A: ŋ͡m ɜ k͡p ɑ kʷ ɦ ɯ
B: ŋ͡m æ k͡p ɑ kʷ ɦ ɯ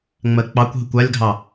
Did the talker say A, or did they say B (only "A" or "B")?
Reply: A